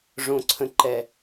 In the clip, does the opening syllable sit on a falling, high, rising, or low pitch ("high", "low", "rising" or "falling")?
low